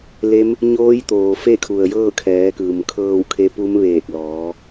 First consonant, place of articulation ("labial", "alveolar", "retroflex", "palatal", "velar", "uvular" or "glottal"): alveolar